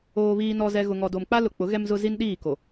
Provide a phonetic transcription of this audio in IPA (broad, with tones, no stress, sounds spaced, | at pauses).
oː˨ β iː˨ n ɔ˨ z ɛ˨ ɣ ʊ˨ ŋ ɔ˨ d o˨ m k͡p a˦ l ʊ˨ k͡p ʊ˨˦ ɣ ɛ˦ m z ʊ˦ z i˦ n ɗ iː˦˨ k o˨